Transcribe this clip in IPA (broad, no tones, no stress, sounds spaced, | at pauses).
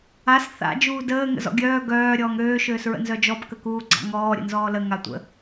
a s θ a̰ d͡ʒ uː d əː ŋ ə̰ z ɔ̰ ɡʲ œː ɡ œː ɾʲ ɔː ŋ øː ʃ øː s ɹ ə̰ n z œ d͡ʒ ɔ b k ə k uː ɡ͡ǀ a̰ ŋ ɔː ɾʲ ə̰ n z ɔː l ə ŋ a tʷ ə̰